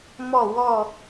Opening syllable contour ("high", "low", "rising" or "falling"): falling